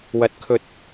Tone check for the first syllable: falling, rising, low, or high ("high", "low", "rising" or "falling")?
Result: low